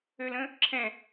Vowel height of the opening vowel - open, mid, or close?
mid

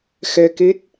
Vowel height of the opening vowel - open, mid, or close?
mid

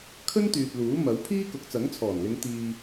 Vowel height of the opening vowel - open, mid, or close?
mid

